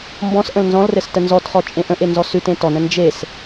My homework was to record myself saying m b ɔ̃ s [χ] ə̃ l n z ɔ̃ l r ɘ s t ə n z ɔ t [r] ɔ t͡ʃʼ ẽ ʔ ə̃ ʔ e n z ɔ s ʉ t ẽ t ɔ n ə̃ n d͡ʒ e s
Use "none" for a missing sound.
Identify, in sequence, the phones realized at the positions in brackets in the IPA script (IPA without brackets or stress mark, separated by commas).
ʔ, χ